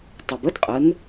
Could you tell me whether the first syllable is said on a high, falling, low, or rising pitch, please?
low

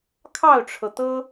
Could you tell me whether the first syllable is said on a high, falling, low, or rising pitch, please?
falling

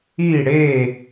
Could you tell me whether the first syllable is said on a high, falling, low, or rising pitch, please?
falling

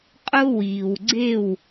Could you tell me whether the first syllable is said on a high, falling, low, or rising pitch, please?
high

